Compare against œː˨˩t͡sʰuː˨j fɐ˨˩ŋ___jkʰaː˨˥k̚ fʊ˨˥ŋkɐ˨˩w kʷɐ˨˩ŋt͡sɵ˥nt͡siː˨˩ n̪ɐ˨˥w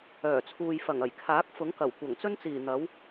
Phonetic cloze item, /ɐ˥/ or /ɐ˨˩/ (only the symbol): ɐ˨˩